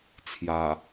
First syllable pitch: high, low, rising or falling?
low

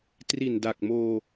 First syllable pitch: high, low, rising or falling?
low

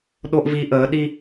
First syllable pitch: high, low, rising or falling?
high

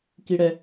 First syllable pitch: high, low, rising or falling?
high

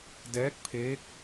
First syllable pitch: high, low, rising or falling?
rising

